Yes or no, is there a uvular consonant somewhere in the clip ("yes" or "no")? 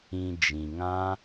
no